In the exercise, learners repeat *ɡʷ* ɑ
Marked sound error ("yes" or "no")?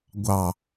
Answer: no